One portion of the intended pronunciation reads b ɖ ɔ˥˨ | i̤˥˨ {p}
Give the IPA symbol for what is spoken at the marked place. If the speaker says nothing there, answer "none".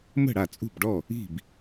b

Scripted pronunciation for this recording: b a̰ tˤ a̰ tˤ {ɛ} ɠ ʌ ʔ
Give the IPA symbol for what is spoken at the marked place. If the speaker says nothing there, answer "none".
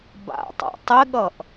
ɪ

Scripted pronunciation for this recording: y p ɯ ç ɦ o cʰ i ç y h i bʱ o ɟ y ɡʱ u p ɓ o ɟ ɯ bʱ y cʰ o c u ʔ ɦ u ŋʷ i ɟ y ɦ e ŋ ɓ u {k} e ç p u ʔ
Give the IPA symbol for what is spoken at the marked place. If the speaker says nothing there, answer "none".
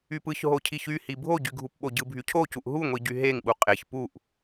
qʼ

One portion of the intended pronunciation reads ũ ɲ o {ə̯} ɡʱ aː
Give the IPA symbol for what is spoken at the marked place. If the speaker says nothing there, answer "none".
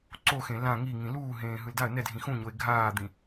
ɪ̯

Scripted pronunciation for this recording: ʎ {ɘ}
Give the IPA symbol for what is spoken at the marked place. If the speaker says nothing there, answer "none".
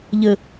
ɘ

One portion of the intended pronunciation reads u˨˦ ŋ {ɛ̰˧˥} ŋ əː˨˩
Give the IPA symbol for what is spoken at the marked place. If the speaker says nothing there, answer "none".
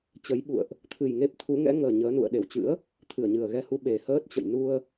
ɛ̰˧˥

